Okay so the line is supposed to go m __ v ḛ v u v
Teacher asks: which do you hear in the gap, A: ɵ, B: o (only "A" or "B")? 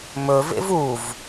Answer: A